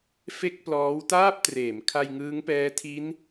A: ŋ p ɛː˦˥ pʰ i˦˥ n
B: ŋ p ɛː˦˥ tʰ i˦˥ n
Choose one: B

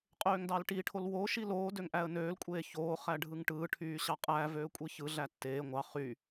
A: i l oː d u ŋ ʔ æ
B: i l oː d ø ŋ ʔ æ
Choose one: B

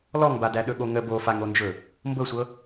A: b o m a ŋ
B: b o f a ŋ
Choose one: B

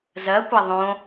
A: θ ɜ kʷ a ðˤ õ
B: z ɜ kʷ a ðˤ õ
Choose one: B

